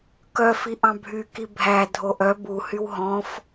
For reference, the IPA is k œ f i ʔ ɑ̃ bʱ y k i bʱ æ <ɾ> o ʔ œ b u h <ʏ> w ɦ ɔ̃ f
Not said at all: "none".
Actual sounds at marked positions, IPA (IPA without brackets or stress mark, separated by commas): dʱ, y